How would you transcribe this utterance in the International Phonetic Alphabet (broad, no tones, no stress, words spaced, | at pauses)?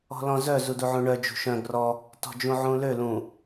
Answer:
ɔ̤lɔ̃zœ zuduʕũɳœ d͡ʒṳʃœ̃ ɡrɔ | tɔ̤d͡ʒũʕũlø lũ